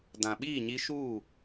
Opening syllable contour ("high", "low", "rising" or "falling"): low